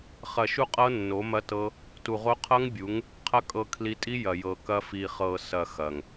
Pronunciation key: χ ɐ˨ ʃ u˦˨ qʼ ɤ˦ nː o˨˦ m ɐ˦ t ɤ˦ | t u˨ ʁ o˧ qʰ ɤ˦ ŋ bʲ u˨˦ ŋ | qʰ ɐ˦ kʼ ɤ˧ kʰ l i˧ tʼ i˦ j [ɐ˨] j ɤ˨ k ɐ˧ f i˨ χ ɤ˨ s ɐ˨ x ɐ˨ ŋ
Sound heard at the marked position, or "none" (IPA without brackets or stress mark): ɐ˨